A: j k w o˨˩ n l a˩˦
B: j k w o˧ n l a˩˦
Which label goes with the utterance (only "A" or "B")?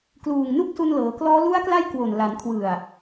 A